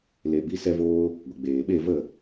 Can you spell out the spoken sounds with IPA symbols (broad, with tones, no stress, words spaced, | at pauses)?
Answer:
le˨bi˧ sɛ˦voː˦ | ɡʷə˨ɡ͡beː˨ ɓe˦˨və˦˨